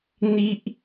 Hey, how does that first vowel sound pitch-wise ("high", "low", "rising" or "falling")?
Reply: high